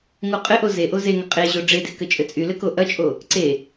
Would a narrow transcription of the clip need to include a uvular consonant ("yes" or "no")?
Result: yes